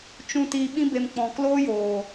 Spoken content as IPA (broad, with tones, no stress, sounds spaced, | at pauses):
t͡ʃ ũ˨ t iː˨ ɓ ĩ˧ b e˨ m k͡p ɔ̃˨ k l oː˦ j oː˨